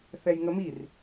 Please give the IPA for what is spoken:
θɛjŋəmir

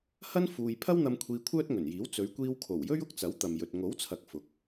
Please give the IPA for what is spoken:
hɐ˥n fuː˧j pʰɐ˥wn̪ɐ˧m kʷʰiː˧kʷʰœː˥t̚ŋɵ˨˩njiː˨˥w t͡sɵ˨˧ɥkʷiː˧wkʰo˨˩wjɵ˥ɥ ʊ˥k̚t͡sɐ˨˥wt̪ɐ˨mjɵ˨t̚ ŋo˨˥wt͡sʰɐ˨k̚ fʊ˨˥k̚

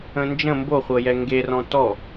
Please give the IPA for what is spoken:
ə̃nd͡ʒə̃ mboχʷɤjɛ ŋɡerɔ̃ tɔ

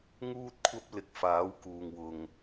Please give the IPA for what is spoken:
ŋuː˥t̚kʷʰɐ˥p̚ lɪ˨k̚faː˨˥wkuː˨ŋ wʊ˨ŋ

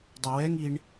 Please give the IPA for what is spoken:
dˤəwɛŋ iɳ

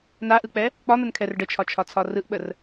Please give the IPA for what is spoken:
naʔɯk͡pɛ | k͡pɒn̪ənkʰɛr ɖət͡ʃʰɒt͡ʃʰɒt͡sʰɒ rɯʔɓər

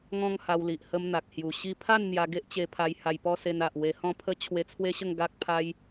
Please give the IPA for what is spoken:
ŋɔ̃˦ŋha˧wli˨ʔ hə˧m n̪a˨k̚hju˨˩ɕi˦ pʰa˥˧n n̪ja˧ɡe˦ʔt͡ɕe˧pʰa˧j ha˧jpɔ˦se˧na˨ʔ we˧hɔ̃˥˧ pʰə˦ t͡ɕʰwe˧t͡sʰwe˦ɕə˥˧ŋ ɡa˦k̚ pʰa˧j

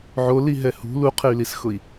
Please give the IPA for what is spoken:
ʕoliɦɛ hṳ luqʰey̯lisxʊi̯

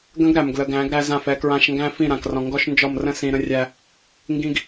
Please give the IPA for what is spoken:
ɡə̃˦ɡɾæ˨m ɡlə˨ɡæ̃˨˦ɡ ɾæ˦zã˦˨fɛ˦kɹã˦ʃ ŋɡæ̃˦fĩ˦˨ɾã˨krɔ̃˨ ŋɡɔ˦ʃnd͡ʒɔ˦˨mrə̃˦ sĩ˨ɾə̃˦rʲæ˦ | ŋɡĩ˦ɡ

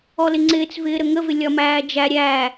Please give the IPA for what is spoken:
ɔlɪŋ͡ǀɪːt͡svɪː ɾəŋəvɪ lʲɒmæː d͡ʒæ ɾʲæ

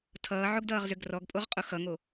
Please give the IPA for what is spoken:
tʰʌːʕoɡdʌːʁzø ɡrɔɡpʼoʁqʼo xʌŋo

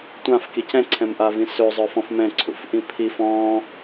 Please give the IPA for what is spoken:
tʷãfkic ɛ̃ǀʰɛ̃mʔavĩ søzˤœfɔ̃f mɛ̃ǀʰṵfʔĩ pʰif ɔ̃

